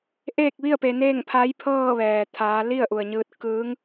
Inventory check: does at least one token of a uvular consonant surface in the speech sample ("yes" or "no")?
no